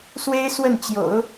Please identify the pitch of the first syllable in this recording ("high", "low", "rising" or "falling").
high